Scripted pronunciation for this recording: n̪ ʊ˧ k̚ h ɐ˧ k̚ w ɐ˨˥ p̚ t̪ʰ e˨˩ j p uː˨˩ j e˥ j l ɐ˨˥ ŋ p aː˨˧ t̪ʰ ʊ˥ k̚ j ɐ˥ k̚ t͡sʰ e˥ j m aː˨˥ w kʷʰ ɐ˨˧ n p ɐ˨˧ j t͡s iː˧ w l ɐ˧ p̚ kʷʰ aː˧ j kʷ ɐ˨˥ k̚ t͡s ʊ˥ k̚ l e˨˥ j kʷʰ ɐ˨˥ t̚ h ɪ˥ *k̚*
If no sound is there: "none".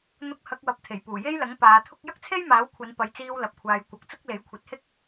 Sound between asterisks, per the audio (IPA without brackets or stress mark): k̚